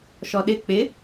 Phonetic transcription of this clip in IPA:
ʃɔɗɪ k͡pɪ

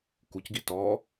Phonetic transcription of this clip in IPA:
kucɡi tɔ

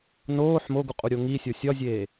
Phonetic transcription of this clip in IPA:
noːħ moɡu qʼuɾʲoŋisʲo sʲɒzʲeː

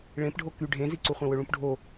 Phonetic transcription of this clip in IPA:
ɭẽpɖʱo ky ɖʱẽziǀuχʷẽ wɵɭũpɖʱo

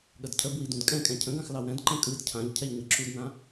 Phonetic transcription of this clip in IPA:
ɠədcʰəbwi dũdkʼɛ̃kʼɛ̃ cʰə̃ɡãx lɑwɛ̃dǃɛ̃ kʼɯd cʰãʎ cʰɛʎɲəǁudnã

